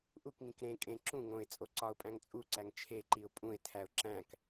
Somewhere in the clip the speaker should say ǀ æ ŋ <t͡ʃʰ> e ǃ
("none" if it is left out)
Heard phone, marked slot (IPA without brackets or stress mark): t͡ʃʰ